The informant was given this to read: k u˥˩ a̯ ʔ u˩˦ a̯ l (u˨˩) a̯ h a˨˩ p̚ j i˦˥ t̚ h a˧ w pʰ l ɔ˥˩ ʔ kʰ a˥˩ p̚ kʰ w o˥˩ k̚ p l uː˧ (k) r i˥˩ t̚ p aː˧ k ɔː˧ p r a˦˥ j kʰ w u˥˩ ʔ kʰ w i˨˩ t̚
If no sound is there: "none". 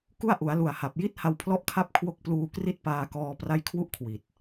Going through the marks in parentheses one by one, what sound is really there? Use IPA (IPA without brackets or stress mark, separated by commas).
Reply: u˨˩, k